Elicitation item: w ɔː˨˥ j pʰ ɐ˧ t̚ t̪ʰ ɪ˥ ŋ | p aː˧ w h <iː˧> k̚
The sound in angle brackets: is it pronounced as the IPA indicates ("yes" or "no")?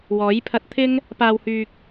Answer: no